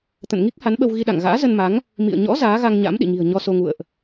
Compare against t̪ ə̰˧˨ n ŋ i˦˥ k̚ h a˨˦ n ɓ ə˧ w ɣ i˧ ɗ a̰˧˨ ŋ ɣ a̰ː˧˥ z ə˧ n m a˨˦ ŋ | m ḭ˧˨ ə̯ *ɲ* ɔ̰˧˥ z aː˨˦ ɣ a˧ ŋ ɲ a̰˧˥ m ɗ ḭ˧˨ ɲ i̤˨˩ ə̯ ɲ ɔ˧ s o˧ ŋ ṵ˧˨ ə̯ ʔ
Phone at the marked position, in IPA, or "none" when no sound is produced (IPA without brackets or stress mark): ɲ